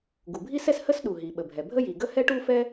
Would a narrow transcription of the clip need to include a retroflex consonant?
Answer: yes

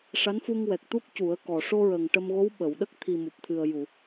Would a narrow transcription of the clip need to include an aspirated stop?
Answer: yes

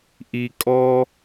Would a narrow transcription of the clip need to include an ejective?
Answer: yes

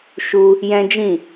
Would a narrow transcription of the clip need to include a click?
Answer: no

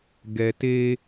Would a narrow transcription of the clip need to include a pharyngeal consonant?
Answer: no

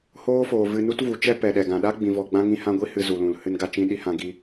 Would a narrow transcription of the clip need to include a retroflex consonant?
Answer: no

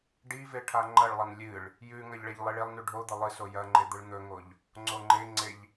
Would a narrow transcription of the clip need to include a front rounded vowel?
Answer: no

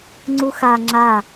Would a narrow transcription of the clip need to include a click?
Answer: yes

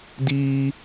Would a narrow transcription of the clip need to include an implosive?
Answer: no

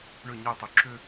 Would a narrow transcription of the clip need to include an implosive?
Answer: no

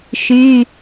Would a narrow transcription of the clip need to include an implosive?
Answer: no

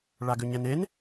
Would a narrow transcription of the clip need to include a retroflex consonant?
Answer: yes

